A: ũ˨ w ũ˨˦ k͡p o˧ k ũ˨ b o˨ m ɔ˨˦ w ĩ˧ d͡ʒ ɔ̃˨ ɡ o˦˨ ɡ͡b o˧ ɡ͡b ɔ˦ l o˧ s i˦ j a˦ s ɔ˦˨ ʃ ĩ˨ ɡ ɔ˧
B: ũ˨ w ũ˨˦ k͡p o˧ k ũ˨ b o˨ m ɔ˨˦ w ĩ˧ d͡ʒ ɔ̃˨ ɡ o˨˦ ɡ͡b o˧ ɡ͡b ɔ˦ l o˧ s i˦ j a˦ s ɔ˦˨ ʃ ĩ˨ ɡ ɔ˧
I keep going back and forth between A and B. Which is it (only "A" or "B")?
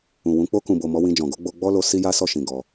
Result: B